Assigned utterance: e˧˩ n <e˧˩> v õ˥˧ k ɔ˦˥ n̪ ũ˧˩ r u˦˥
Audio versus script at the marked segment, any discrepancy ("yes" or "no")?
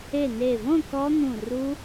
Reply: no